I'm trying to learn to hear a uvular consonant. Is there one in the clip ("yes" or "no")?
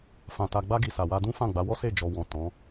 no